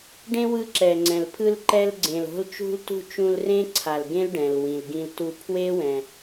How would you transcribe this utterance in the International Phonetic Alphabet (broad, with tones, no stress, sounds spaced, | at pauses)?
ɖ ẽ˥ w ɯ˧ ǁ ɛ˩ ŋ͡ǀ ɛ̃˩ l pʰ ɯ˧ l ǃ ɛ˧ l ɡ͡ǀ ẽ˩ l o̤˧ l t͡ʃ ṳ˧ l t ṳ˧ t͡ʃ ũ˧ l r ẽ˥ ǀʰ a˩ l ɡ ẽ˥ l ɖ ɛ̃˩ l w ĩ˩ l ɡ ĩ˧ l t u˧ pʰ w e˥ w ɛ̃˩